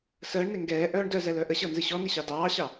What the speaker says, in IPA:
səːɳne ŋɡɛːʔœːɳ dœzɛ lœʔəɕɤ nzɨɕɔni ɕɑdɑːɕɑ

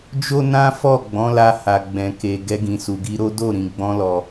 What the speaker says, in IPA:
d͡ʒo˦nã˦fɔ˦˨ ɡ͡bɔ̃˨˦la˧ ha˧ɡ͡bɛ̃˧ ke˨ ɡɛ˧ɡĩ˨su˨ɡi˧ ɾo˦do˦˨ɾĩ˨ ɡ͡bɔ̃˧lɔ˨

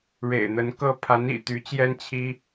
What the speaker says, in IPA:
ɻḛ˨˩ɪ̯n̪ə˧˥nkɤ˥ pʰa˧˥nḭ˨˩ t̪y˧˥ t͡ɕjɛ˥nt͡ɕʰi˥

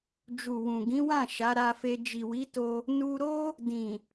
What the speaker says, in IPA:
d͡ʒu˨wũ˨ ɡĩ˨˦wã˦˨ ʃa˨˦ɾa˧fe˧ d͡ʒi˨wi˨˦to˧ | nu˧ɾo˦ | dĩ˨

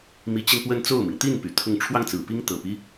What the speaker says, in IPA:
mi˧˥t͡ɕi˧npwə˥˧n t͡so˥˩ʊ̯mi˩ŋ t̪i˥˩n py˨˩t̪ʰʊ˥˧ŋ ʈ͡ʂʰwɑ˥˩ŋt͡sɹ̩˨˩ pi˥ŋt̪ɤ˨˩pi˦

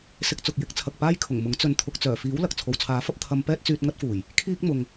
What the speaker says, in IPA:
sɪ˧k̚t͡sʊ˨k̚jɪ˨˥k̚ t͡sʰɐ˨k̚paː˥jkʰʊ˨˩ŋ mʊ˨˥ŋt͡sɵ˧n t̪ʰʊ˨k̚t͡sœː˨˩fiː˨˥w lɐ˨k̚ t͡sʰo˨wt͡sʰaː˨˥fɐ˥p̚ t̪ʰɐ˧m pɛː˥t̚t͡syː˧t̚ ŋɐ˥t̚fuː˨˩j | kʰiː˥k̚mʊ˨ŋ

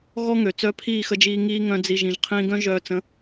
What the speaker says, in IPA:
ɣɔ˦ŋø˨ t͡sœ˧pʰiː˦˨xə˧d͡ʒiː˧ ŋiː˧ ŋœ̃˦d͡zi˧ ʒĩ˨ʒqʰĩː˧ ɡœ̃˦ ʒœː˧t͡sə̃˨˦

